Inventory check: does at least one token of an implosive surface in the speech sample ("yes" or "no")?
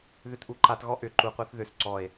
no